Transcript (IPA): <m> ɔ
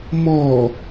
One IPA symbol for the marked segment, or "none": m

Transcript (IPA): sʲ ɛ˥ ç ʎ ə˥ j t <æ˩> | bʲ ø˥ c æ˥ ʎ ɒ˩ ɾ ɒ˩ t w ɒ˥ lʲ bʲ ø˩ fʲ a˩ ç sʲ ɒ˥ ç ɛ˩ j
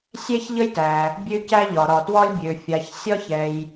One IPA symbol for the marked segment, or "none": æ˩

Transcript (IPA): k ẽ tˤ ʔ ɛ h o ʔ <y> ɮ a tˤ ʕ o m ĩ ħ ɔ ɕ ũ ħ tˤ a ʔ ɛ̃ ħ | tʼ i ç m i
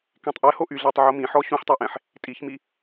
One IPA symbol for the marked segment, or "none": y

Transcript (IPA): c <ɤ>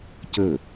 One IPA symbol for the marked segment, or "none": ɵ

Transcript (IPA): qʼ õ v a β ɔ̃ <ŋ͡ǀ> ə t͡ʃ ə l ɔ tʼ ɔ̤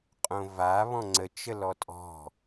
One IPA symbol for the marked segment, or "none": ŋ͡ǀ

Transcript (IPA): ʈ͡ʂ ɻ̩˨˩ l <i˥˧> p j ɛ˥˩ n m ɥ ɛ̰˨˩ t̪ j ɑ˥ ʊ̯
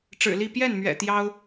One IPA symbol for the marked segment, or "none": i˥˧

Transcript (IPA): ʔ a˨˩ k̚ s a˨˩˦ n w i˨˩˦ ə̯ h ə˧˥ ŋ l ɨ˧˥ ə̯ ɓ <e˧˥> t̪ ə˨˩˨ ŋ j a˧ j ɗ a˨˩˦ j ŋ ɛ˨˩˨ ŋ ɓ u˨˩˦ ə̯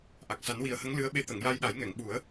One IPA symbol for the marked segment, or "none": e˧˥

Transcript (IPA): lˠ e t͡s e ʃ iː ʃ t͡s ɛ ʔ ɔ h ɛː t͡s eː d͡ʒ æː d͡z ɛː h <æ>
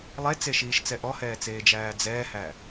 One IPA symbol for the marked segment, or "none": æ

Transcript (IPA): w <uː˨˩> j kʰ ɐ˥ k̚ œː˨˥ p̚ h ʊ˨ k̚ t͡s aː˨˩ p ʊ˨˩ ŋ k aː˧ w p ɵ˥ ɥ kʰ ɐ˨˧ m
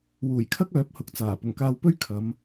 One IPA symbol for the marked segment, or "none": uː˨˩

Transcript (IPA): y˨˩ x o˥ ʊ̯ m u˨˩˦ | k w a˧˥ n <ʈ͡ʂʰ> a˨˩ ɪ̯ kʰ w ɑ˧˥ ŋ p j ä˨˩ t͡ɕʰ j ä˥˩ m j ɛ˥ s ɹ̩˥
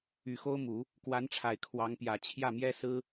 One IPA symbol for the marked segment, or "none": ʈ͡ʂʰ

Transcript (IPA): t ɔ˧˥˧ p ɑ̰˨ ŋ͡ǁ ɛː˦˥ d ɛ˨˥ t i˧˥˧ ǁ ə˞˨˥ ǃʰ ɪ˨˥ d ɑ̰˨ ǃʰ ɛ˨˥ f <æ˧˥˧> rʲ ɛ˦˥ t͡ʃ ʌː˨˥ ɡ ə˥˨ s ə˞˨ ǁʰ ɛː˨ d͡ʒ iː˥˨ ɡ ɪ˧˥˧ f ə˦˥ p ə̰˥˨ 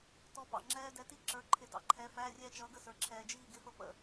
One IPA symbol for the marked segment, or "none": æ˧˥˧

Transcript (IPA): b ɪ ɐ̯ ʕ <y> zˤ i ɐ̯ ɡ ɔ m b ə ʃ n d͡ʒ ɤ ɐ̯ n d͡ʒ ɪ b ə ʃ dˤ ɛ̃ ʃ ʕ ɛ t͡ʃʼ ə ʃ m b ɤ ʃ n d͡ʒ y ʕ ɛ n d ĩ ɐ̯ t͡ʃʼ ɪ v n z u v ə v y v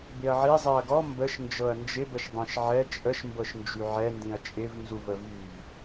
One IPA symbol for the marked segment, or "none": i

